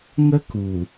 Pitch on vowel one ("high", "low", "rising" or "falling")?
high